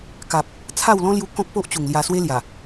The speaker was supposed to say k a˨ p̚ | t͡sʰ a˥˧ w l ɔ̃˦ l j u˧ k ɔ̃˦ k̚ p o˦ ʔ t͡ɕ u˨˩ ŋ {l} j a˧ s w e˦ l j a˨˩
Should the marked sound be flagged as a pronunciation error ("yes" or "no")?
no